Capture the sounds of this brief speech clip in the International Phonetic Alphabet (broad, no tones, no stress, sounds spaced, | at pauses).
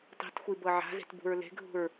tˤ i̤ t xʷ i b ɤ ʕ a̤ z e̤ t b ṳ ɹ l e̤ ɡʱ ṳ ɹ